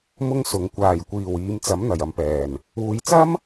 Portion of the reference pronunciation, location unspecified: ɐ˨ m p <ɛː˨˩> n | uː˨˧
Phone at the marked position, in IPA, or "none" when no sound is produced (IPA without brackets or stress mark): ɛː˨˩